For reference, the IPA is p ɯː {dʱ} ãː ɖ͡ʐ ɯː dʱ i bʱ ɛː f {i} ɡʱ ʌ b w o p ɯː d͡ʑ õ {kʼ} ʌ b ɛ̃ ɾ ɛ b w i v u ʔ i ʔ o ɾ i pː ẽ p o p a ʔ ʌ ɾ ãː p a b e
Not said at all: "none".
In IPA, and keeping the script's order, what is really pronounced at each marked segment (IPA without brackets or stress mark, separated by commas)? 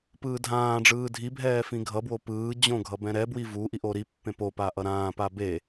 dʱ, ĩ, ɡʱ